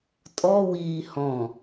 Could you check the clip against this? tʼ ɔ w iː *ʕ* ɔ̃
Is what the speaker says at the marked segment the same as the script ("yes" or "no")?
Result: no